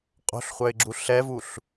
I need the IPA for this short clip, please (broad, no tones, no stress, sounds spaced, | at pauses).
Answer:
qʼ o̤ ɬ χʷ œ ɪ̯ ɡ͡ǁ u ɬ ɛ v u ɬ